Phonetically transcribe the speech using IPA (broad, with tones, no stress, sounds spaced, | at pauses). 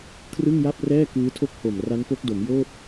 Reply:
kʰ r ɯ˥˩ ŋ j a˥˩ p̚ r ɛː˥˩ k ɯː˦˥ tʰ o˥˩ k̚ h o˨˩ m r a˦˥ n p o˦˥ k̚ d o˩˦ m j oː˥˩ t̚